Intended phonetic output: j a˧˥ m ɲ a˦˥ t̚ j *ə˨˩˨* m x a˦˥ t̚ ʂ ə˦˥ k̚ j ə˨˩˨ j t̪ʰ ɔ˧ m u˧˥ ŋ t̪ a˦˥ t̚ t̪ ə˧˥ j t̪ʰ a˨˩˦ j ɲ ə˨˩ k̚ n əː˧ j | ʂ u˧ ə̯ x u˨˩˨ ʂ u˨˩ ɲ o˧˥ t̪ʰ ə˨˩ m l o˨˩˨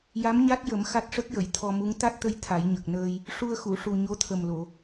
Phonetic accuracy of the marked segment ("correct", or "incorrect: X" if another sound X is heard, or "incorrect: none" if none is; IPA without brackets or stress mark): incorrect: ə˨˩˦